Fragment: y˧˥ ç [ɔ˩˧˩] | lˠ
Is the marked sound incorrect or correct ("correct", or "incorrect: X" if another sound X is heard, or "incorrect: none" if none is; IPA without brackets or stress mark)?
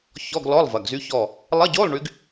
incorrect: ɔ˦˨